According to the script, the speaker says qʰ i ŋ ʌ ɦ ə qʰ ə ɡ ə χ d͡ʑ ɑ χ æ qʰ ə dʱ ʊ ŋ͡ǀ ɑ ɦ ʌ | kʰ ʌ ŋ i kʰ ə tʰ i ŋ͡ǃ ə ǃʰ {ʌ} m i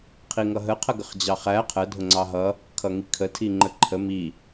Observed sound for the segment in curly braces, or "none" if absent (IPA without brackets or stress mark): ə